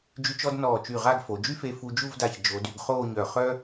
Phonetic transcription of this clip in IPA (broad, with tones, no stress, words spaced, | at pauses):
d͡ʒy˧t͡ʃɔ˥˧d nɔː˧˩t͡ʃy˧˩ ʁa˥˧ɡfo˩˧ d͡ʒy˥fe˧fu˧ d͡ʒu˥˧vda˧˩ç d͡ʒo˩˧dy˩˧ɡ χoː˥˧ɲœ˧˩ χœ˥